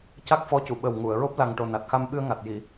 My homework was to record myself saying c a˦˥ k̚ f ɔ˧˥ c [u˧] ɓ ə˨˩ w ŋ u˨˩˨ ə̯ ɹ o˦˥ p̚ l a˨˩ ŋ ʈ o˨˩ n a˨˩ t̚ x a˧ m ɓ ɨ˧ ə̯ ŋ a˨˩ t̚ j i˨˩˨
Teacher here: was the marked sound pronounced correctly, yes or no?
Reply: no